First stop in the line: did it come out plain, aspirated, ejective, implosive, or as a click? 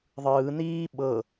implosive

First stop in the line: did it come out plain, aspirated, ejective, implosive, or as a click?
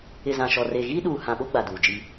implosive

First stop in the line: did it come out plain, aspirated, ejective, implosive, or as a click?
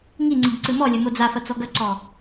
click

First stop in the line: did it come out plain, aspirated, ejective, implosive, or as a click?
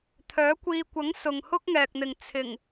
aspirated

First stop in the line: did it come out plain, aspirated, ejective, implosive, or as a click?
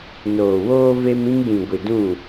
plain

